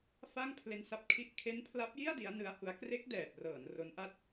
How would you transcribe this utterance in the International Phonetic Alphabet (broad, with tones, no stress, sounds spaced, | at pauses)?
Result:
f a˥˩ ŋ pʰ l e˦˥ n s a˦˥ p̚ kʰ i˥˩ ʔ kʰ e˦˥ n pʰ l a˦˥ p̚ j i˥˩ a̯ d i˦˥ a̯ n ɯ˦˥ a̯ h u˦˥ a̯ k r e˦˥ k̚ d ɛː˨˩ p̚ r ɤː˩˦ n r o˦˥ n ʔ a˥˩ t̚